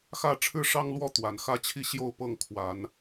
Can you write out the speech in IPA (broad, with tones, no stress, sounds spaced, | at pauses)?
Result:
x ä˥˨ ʈ͡ʂʰ ɻ̩˦ ʂ ɑ˦ ŋ l w ɔ˥˨ t̪ w a˨˦ n x ä˦ t͡ɕʰ i˥˨ ɕ j o˥˨ ʊ̯ p ɤ˥˨ ŋ kʰ w a˨˦ n